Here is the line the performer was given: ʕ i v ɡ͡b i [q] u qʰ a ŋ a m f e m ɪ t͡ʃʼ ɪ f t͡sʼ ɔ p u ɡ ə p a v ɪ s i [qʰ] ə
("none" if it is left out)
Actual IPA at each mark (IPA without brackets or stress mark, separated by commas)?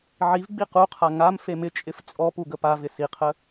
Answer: q, qʰ